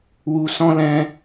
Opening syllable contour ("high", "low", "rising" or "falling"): low